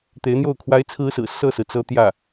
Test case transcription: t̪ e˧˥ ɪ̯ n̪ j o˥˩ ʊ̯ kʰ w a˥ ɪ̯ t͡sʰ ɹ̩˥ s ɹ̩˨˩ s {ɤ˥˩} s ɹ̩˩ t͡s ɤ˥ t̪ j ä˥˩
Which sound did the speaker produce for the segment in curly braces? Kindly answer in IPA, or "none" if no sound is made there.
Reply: ɤ˥˩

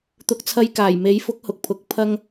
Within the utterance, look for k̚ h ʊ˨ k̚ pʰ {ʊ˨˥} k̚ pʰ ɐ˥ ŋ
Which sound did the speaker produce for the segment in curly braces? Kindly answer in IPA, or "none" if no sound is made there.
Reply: ʊ˨˥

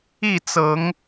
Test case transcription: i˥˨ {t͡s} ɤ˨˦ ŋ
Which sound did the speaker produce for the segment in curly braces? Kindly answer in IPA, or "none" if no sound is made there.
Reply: t͡s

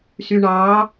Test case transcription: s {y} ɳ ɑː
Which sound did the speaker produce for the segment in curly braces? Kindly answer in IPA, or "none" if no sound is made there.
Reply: y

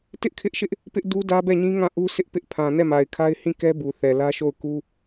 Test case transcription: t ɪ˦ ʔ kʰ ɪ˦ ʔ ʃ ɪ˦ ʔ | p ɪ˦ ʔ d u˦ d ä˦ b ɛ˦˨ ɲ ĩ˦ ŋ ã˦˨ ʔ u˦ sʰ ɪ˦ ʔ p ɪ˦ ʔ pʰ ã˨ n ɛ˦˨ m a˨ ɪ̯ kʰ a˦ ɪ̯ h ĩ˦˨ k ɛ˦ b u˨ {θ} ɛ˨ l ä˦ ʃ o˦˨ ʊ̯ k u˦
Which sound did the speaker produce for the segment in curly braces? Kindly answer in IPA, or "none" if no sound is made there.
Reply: θ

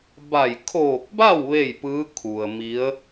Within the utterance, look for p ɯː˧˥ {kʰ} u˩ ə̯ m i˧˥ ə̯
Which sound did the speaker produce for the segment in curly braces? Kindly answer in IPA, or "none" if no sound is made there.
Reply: kʰ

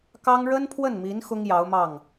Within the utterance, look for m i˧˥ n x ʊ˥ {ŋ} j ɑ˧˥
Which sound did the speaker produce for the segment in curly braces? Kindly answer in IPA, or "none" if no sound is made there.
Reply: ŋ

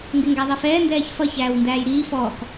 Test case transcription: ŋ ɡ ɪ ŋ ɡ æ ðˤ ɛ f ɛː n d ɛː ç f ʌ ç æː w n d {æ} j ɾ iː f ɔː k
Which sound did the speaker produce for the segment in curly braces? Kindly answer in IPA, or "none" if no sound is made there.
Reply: æː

